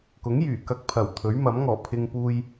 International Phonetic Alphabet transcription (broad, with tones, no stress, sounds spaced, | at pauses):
k ʊ˨˥ ŋ j yː˨˩ k ɐ˧ k̚ pʰ ɐ˨˩ w t̪ʰ ɵ˨˥ ɥ m ɐ˨˥ m ŋ ɔː˨˩ pʰ ɪ˧ ŋ p uː˧ j